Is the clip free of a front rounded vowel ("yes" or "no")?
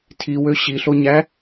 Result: no